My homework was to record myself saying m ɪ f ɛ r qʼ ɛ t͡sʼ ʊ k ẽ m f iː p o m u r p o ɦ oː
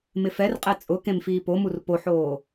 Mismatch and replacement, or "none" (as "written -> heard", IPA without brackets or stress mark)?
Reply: ɦ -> ħ